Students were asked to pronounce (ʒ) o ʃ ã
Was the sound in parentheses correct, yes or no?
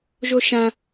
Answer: yes